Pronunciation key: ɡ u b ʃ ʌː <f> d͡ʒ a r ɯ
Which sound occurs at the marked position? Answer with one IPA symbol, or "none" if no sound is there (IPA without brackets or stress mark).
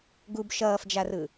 f